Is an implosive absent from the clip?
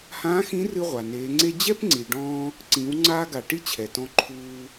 yes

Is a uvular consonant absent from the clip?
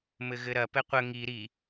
no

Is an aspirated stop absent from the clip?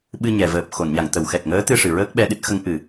yes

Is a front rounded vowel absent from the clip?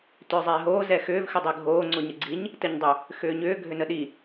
no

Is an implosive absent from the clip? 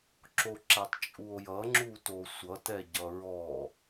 yes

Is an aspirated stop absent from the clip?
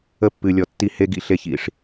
yes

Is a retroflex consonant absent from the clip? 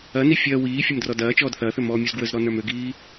yes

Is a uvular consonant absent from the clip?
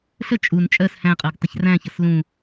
no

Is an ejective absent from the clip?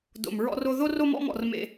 yes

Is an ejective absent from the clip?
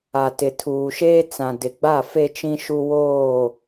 yes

